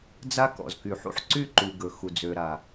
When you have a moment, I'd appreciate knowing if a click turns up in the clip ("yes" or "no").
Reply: yes